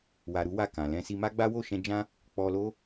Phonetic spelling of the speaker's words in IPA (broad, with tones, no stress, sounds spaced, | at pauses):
w a˧ ɾ u˦ w a˦˨ k ã˨ l ɛ̃˧ s i˧ m a˦ ɡ͡b a˦ w o˦˨ ʃ ɛ̃˧ d͡ʒ ã˦ | k͡p ɔ˧ l o˦